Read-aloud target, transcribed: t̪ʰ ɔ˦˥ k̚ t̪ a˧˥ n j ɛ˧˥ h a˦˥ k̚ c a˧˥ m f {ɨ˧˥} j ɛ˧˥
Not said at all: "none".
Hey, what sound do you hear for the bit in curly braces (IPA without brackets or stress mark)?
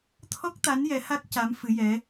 ɨ˧˥